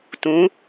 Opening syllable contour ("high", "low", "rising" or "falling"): rising